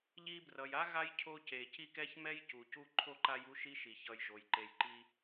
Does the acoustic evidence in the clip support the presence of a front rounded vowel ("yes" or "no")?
no